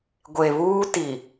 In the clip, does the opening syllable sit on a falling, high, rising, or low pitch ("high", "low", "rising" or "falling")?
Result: low